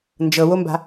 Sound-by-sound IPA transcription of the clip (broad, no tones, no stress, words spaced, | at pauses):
nd͡ʒɤwomba̤